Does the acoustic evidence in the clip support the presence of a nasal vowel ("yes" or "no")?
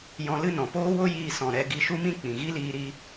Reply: yes